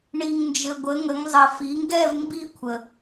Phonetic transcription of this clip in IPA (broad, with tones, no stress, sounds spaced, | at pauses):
ɳ i˩ ŋ n d͡ʒ ɘ˩ ɡʷ ə˩˧ ŋ ə˩˧ ŋ zˤ ɘ˩ f i˩˧ ŋ ɡ ɛ˥˧ v m b i˥˧ kʷʰ ə˩